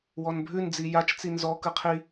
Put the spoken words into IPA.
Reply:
w ɔ n bʱ ʉ n d͡z i j a t͡ʃ t͡s i n z ɔ k ɯ qʰ i

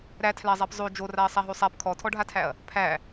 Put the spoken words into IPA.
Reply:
ɾ æ tʰ l æ zˤ æ p zˤ o d͡ʒ o r a ɐ̯ sˤ a ɦ o sˤ a p kʰ ɔ tʰ ɔ ɖʱ a tʰ æ ɐ̯ | pʰ æ

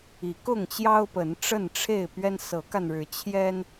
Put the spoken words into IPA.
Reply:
i˨˦ k ʊ˥˨ ŋ t͡ɕ j ɑ˦ ʊ̯ p ə˨˦ n ʈ͡ʂ ə˥˨ n ʈ͡ʂʰ e˥˨ ɪ̯ p ɥ ɛ˦ n s ɤ˨˦ k a˧ n ɻ ɻ̩˨˦ t͡ɕʰ j ɛ˦ n

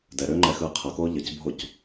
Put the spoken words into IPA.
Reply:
d ɛ ɾ ʏː ŋ͡ǃ ɛ x ɯː qʰ ʌ k oː ʎ ʌ c bʱ o c

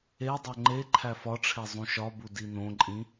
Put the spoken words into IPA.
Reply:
e dˤ o ŋ͡ǃ e ǃʰ æ f ɒ ʈ͡ʂʰ e zˤ ũ ʃ ɒ b u d i n õ ǃʼ ĩ

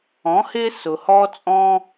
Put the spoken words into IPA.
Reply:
ɔ̃˩˥ h ɪː˥ s ʊ˩ h ɔː˥ t͡sʼ ɔ̃ː˥

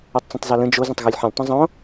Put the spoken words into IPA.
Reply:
ʉ tˤ t͡s ĩ tˤ z ɒ l ə̃ d͡ʒ o z ə̃ tˤ ɣ o lʲ ħ ə̃ lʲ tˤ ə̃ zˤ õ

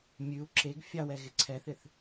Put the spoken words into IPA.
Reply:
mʲ ʉ u̯ ǁ e ɡ fʲ ɑ w ɛ ɣ ɪ ǀʰ ɛ θ ɪ θ

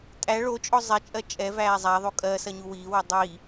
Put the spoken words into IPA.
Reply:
tʼ æ ɭ o t͡ʃʼ ɔ zˤ ɛ t͡ʃʼ ɜ t͡ʃʼ ɛ v æː zˤ æ ðˤ o kʼ ɜ s ɐ ɲ u w iː w ɔ dˤ iː

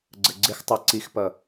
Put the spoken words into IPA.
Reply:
ɡ͡ǀ ə ɡ͡ǀ ɪ x tˤ ɑ ǀ i x p ʌ

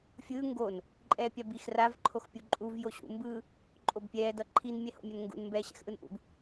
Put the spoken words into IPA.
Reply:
fʲ ɯː ŋ ɡ o n | ǃʼ ɛː pʲ a b i x r a v ǃʰ o x pʲ u ǃʼ u v j o ɕ ṵ m b ɯː | ǃʼ o b pʲ ɛː d ʌ ǃʰ i n mʲ ɛ h o̰ mʲ ʌ n ŋ ɡ ṵ n m b ɛː ɕ ɛ̰ x ʔ ɯ n ʔ ṵ b

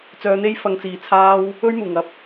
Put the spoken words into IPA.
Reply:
t͡s œː˧ n̪ e˥ j f ɐ˧ ŋ t͡s iː˨ t͡sʰ aː˥ w | ɵ˥ ɥ m uː˨˩ ŋ ɐ˨ p̚

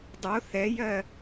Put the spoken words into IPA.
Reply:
dˤ o θ ɛ j ɜ

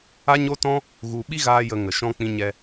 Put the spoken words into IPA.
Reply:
a˦ ɲ o˦ t ɔ̃˦ | ɣ u˧ ɓ i˦ ɣ aː˧ j ə˧ ŋ ə˨ ʃ ɔ̃˦ k͡p ĩ˦ ɲ ɛ˧

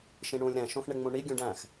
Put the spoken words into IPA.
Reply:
ʃ ĩ ɳ ũː lʲ ɾ æ̃ ʃ õ x ɳ e ŋ͡m ũ ɳ i ɡʲ ũ ɖ æ̃ x

